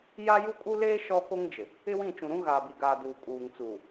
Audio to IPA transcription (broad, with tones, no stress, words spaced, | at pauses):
ja˦ju˦kʼu˦leː˦ ʃɔ˦ko˦ŋd͡ʒɪ˨ | ɪ˦wĩ˦˨t͡ʃũ˨ɾũ˦ ɣaː˨bi˨ɡaː˨ duː˨kʼuː˨ŋt͡suː˨